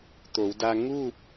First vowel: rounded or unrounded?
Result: rounded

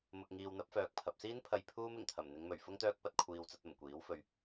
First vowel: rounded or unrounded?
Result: rounded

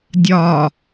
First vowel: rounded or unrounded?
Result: rounded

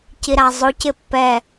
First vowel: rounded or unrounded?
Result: unrounded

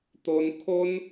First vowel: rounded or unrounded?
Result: rounded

